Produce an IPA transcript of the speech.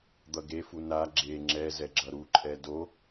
d̪ ʌ ɡ e f u n a ɡ͡ǁ e ŋ͡ǁ ɛ z ɛ ɡ͡ǁ ʌ ɾ u ǃʼ ɛ d o

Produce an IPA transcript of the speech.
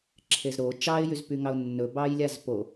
ǁʰ e z ɾ o t͡ʃ ɑ ɪ̯ j y z p y ŋ ɑ ʊ̯ nː ɵ b ɑː j lʲ a z p o

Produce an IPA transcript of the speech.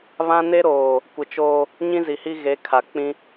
β ã˦ n e˦ ɾ oː˨ | kʷ ɪ˨ t͡ʃ oː˦ | ɲ ĩ˦ z i˨ h i˦ ɣ e˨˦ kʰ a˨ k͡p ĩ˦

